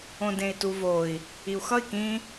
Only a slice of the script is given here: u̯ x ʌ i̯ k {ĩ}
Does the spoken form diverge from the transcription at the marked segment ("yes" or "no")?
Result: no